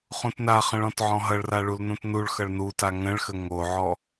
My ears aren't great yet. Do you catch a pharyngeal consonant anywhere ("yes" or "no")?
yes